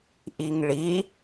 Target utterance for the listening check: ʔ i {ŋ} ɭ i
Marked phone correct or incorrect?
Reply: correct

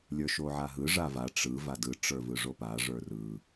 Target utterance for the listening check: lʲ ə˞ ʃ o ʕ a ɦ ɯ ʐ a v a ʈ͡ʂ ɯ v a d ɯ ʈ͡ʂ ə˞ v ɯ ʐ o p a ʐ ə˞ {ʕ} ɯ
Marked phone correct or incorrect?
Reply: incorrect: r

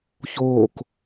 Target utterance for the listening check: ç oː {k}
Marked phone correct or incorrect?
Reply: correct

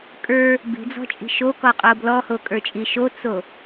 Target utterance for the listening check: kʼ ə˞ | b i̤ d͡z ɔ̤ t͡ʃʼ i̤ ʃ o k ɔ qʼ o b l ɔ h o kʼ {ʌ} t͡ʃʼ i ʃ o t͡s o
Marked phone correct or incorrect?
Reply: incorrect: ə˞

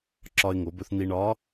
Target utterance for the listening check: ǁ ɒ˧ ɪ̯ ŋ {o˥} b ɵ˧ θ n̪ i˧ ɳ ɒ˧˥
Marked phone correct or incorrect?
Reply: incorrect: o˩˧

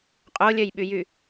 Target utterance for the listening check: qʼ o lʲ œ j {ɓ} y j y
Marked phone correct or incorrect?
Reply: correct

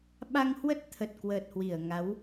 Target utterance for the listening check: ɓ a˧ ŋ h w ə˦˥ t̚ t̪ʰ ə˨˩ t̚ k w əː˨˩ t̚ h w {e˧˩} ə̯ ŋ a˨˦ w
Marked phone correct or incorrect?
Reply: incorrect: i˧˩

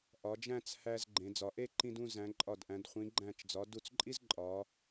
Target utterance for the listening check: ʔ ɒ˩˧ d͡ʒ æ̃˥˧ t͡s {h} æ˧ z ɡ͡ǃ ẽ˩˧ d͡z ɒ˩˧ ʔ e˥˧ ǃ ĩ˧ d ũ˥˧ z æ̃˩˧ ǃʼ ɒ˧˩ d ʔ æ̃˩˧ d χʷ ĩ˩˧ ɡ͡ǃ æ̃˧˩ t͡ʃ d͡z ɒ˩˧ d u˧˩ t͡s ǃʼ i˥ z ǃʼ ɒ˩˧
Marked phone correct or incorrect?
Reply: correct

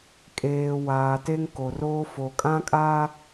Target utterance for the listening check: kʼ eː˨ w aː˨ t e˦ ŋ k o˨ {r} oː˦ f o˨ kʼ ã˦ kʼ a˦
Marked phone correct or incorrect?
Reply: correct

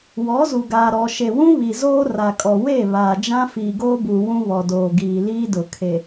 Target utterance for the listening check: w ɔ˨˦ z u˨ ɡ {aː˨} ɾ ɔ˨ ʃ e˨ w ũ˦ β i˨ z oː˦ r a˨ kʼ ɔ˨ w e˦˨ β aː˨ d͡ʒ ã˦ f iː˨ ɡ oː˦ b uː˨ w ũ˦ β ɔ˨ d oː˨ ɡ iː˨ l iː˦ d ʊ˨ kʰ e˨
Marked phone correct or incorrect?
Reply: correct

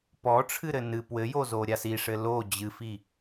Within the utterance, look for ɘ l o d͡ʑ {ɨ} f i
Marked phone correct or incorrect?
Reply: correct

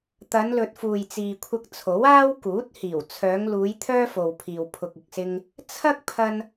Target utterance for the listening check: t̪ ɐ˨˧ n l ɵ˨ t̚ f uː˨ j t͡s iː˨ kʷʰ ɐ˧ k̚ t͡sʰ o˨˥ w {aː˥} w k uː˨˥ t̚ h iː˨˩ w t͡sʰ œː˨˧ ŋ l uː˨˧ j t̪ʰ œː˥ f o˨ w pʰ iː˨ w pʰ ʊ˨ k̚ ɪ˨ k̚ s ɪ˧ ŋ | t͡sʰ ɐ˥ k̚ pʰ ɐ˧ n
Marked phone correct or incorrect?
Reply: correct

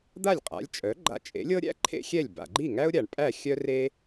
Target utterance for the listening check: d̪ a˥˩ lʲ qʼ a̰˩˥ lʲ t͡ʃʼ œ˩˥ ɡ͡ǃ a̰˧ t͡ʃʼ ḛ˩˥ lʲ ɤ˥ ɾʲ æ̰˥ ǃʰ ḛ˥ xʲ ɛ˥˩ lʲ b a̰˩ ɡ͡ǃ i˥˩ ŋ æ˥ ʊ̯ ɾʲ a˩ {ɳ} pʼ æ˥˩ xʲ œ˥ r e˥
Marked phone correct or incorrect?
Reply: correct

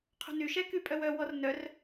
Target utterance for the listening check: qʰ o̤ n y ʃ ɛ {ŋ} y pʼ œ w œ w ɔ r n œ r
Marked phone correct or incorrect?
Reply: incorrect: k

